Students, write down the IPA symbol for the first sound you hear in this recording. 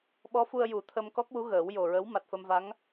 ɓ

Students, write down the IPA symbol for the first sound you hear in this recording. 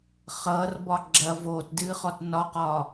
χ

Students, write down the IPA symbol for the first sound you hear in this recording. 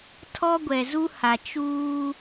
tʰ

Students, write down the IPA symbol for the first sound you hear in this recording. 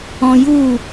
ɔ̃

